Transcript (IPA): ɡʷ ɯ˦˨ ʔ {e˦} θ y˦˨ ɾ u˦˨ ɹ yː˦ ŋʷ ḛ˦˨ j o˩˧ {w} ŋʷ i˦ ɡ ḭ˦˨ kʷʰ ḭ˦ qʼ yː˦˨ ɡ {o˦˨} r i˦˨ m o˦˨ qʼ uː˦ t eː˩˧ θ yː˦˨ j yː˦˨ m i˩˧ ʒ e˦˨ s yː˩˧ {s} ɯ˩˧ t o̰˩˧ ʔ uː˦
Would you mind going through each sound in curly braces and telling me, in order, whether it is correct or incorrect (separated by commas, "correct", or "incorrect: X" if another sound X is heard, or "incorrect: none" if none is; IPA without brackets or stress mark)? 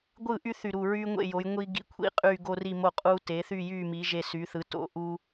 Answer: incorrect: y˦, incorrect: j, incorrect: o˦, incorrect: θ